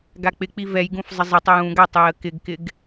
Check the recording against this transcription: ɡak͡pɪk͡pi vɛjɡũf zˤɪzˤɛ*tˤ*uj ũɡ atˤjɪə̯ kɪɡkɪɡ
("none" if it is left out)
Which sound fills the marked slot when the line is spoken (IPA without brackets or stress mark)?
tˤ